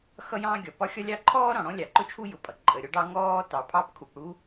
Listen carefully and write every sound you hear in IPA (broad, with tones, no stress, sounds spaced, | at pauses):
x ʌ˥ j ɑ̃ː˥ ɡʲ ɒ˩ p ɒ˥ xʲ ɒ˥ lʲ ɑ˥ ǃʰ ɔː˥ ɾ ɔ̃˩ ɽ ɔ̃˥ lʲ ɑ˩ ǃ ʊ˥ t͡ʃʰ u˥ j ʊ˩ pʼ ʌ˩ ǃʼ ə˩ ɾʲ ɔ˥ ɖ ɑ˥ ŋ ɔː˥ t ɑ˩ pʰ ɑ˥ p kʰ u˩ p ɽ u˥